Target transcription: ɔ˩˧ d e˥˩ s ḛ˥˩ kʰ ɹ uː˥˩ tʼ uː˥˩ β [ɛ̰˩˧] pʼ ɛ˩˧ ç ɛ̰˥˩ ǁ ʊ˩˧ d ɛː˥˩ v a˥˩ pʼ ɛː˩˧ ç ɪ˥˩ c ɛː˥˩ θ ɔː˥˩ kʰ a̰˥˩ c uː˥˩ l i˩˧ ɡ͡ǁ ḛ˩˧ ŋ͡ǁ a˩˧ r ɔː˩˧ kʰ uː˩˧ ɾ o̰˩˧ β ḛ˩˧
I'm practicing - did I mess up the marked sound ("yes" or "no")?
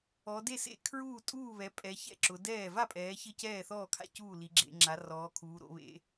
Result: yes